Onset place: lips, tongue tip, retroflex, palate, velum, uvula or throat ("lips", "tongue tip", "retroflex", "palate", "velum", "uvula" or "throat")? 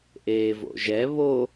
throat